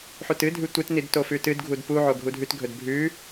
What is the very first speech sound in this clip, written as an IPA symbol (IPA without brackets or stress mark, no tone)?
ħ